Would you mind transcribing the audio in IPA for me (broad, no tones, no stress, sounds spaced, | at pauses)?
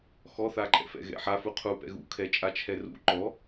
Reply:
x ɔ θ a ǃʼ ɛ̰ f ɛ̰ ɣ ɛ̰ ħ a f u qʰ u p ɛ̰ ɣ ṵ kʰ ɛ t͡ʃʼ a t͡ʃʰ ɛ r ṵ ǃ ɔ